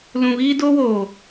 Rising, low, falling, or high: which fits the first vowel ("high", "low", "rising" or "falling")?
low